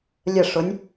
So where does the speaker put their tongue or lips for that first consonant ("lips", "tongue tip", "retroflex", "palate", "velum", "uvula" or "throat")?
tongue tip